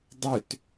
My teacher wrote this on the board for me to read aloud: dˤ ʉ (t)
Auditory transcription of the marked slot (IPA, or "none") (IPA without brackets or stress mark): t